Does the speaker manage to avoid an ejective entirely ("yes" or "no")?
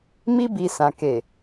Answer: yes